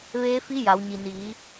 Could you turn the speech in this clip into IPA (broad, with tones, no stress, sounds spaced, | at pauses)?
ʋ eː˧˥ f i˧˥ j a˩˧ w ɲ i˩ n iː˩˧